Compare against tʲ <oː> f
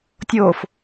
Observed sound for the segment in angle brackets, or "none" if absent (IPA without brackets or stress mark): oː